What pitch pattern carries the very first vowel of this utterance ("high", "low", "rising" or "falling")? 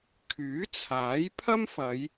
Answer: rising